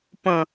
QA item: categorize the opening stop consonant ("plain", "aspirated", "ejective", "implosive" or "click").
plain